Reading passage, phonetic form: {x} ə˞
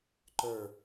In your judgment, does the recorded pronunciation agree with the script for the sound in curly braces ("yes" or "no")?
no